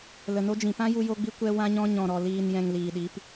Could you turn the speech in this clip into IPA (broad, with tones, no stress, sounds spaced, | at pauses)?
l ə˨ n o˧ d͡ʒ ĩ˨ p ã˦ j u˧ j o˧ ɡ͡b i˧ kʷ ɛ˧ w ã˧ ɲ ɔ̃˧ ɲ ɔ̃˨ ɾ ɔ˨ l iː˨ n j ɛ̃˨ ŋ l iː˨ ɗ i˨˦ p